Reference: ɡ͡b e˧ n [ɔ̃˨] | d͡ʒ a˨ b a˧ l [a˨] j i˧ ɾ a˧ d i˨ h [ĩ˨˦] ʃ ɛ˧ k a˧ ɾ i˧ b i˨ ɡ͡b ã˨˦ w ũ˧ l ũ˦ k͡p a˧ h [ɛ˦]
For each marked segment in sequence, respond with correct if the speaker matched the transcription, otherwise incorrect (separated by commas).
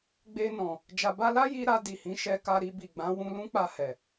correct, incorrect, correct, incorrect